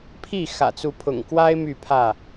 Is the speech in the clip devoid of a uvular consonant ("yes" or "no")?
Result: yes